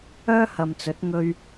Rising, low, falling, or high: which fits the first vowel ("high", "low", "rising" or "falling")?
high